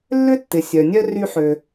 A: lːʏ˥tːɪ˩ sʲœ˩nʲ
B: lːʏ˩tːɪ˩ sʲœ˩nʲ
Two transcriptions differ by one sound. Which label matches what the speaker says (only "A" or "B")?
A